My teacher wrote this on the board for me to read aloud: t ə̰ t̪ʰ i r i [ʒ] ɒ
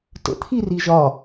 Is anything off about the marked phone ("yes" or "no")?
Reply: no